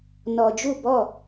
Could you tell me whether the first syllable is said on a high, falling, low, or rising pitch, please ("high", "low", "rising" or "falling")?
low